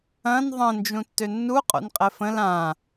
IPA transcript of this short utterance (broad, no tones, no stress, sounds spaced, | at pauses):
ɐ̃ n ðˤ ə̃ n d͡ʒ ũ tː ø nː u qʼ o̰ n qʼ ɛ f ə̃ l ã